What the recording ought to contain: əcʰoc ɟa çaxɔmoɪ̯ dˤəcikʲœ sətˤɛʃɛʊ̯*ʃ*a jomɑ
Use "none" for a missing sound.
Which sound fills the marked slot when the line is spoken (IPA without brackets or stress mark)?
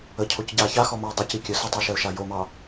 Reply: ʃ